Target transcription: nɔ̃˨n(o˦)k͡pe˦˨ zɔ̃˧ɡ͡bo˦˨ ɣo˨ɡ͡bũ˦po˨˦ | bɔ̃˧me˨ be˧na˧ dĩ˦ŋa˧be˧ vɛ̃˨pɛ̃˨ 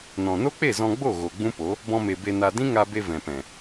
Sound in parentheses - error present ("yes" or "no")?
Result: no